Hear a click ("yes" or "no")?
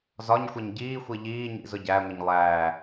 no